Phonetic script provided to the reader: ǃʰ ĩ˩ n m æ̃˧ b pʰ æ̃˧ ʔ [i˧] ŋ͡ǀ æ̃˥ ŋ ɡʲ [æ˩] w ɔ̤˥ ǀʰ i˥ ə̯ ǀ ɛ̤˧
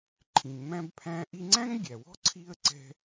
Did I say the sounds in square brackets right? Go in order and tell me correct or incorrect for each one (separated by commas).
correct, correct